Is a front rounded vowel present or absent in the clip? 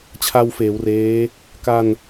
absent